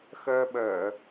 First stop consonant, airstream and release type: implosive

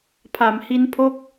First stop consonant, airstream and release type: aspirated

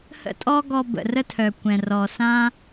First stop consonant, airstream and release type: ejective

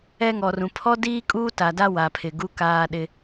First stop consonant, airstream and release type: aspirated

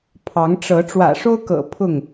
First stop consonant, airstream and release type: aspirated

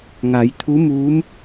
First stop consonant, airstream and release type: aspirated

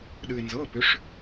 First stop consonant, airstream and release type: implosive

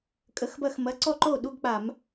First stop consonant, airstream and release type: ejective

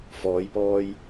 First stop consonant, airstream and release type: plain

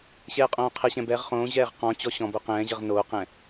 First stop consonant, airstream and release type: ejective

